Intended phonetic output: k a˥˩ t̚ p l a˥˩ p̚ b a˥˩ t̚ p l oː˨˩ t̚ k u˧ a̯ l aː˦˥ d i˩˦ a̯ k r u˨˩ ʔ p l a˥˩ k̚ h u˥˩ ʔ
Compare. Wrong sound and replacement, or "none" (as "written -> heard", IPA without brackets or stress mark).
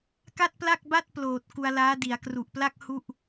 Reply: p̚ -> k̚